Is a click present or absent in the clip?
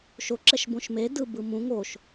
present